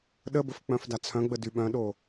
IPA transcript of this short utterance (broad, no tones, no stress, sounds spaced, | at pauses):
ɗ ə b ə f k͡p œ̃ f d a t͡sʰ œ̃ ɡ͡b ə d y ɓ œ̃ ɗ o